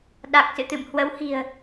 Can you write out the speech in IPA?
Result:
ɗa˨˩k̚sɨ̰˧˨t̪ɨ̰˧˨m hwə˨˦whi̤˨˩ə̯

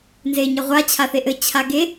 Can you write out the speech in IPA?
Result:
nzeɲɘʁʷa t͡ɕʰaθeʔɘ t͡ɕʰaɡe

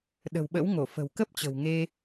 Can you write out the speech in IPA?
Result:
ɗə̤˨˩wɓə̰˧˥wŋo˧˩ fə̤˨˩w kə˦˥p̚t͡ɕə̤˨˩wŋe˧

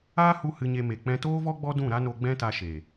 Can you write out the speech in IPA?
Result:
aː˦hu˧ hɨ˧ɲe˧me˨ k͡pɛ̃˧toː˦vɔ˦ ɡ͡bɔ˦dũ˦˨ɾa˦no˧ ɡ͡bɛ̃˦ta˧ʃe˨

